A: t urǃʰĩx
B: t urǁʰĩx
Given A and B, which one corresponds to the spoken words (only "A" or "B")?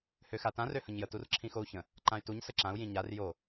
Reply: B